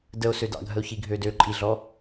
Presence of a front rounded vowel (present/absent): present